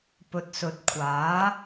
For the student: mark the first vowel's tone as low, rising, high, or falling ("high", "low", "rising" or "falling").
low